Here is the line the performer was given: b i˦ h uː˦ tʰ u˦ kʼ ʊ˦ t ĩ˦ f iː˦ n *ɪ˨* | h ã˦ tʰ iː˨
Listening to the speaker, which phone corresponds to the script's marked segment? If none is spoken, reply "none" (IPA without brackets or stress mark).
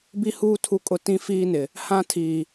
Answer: ɪ˨